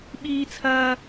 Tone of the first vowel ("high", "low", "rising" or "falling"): high